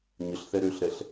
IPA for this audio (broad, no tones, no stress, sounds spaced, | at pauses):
ɲ ə ɬ θ ɛ ɾ ø ɬ ɾ ɛ ɬ